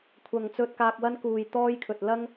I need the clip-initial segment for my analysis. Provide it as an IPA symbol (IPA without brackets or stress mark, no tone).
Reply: kʷʰ